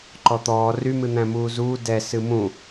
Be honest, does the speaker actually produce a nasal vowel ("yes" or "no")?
yes